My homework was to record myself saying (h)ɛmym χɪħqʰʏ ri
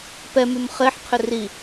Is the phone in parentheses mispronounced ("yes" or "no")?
yes